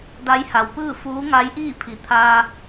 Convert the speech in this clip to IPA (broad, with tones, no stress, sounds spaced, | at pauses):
d a˧˥ j h a˩ w p ɯː˥˨ f uː˧˥ ŋ a˧˥ j ʔ iː˥˨ pʰ i˩ t̪ʰ aː˧